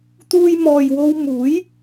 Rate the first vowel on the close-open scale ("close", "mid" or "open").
close